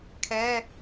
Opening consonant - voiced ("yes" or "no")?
no